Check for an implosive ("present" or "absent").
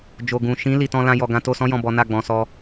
absent